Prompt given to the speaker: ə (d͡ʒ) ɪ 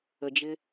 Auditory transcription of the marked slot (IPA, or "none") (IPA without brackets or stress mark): d͡ʒ